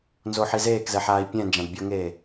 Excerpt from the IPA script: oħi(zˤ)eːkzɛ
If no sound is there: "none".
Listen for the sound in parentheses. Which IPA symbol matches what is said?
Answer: z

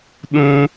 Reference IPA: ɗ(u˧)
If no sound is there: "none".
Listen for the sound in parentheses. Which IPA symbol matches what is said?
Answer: ũ˧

